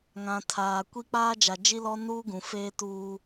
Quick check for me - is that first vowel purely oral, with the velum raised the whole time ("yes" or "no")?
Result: no